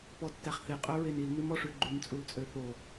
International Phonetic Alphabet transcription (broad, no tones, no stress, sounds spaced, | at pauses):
p ɔ tː æ χ θ e qʼ œ ɹ e n i l n ʉ m ɔ ʂ ʉ ɡ͡ǃ ʉ m t͡sʼ u l t͡sʼ ø θ o